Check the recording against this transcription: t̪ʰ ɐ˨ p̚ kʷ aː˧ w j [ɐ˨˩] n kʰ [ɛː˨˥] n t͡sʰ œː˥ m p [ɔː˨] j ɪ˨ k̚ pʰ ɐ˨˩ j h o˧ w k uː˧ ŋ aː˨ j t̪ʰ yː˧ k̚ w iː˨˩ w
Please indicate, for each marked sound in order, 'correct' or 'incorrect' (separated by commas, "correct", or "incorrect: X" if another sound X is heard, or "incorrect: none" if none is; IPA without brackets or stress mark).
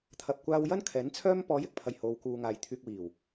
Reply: incorrect: ɐ˥, correct, incorrect: ɔː˨˧